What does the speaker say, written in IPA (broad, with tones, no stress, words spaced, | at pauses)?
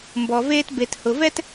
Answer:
mbɔ˧veː˥t be˧thʊ˧vɛ˥t